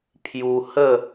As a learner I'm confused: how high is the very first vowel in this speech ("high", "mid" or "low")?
high